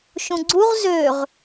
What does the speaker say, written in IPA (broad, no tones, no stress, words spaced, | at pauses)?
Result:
ʃũɡ͡ǀuʁ zøʁ